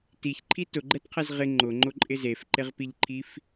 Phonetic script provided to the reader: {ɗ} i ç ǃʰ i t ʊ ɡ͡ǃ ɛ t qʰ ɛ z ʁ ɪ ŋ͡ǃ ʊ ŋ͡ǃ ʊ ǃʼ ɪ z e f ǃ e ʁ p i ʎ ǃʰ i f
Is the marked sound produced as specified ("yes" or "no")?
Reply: no